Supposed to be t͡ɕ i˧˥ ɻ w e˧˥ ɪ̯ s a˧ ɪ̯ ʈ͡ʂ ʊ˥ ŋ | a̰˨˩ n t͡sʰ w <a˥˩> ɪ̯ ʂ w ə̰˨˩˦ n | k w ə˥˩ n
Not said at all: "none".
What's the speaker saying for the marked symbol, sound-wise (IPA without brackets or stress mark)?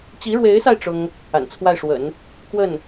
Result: a˥˩